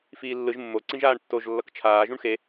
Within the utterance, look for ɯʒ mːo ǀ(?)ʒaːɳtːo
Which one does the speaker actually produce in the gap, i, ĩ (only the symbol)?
ĩ